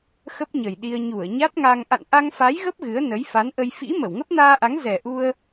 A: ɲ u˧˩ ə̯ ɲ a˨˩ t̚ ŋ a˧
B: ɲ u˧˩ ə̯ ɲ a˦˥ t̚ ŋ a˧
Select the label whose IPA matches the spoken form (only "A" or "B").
B